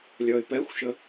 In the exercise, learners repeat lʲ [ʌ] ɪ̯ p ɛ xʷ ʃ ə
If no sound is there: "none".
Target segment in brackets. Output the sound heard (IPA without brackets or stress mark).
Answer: ʌ